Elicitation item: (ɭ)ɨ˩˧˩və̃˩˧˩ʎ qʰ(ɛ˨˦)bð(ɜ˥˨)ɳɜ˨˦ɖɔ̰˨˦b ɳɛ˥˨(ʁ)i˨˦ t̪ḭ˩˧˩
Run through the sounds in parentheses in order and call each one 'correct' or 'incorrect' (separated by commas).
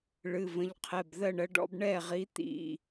correct, incorrect, correct, correct